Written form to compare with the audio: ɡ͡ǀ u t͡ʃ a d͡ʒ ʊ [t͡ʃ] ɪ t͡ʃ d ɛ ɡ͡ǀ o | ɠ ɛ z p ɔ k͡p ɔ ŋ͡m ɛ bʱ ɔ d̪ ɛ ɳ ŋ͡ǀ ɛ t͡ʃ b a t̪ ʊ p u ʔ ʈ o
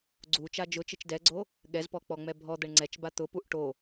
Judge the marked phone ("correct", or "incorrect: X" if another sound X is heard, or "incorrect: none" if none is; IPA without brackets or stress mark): correct